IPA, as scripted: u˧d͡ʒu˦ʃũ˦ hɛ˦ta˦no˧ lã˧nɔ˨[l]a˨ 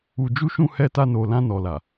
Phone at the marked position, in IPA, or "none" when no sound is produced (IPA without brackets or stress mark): l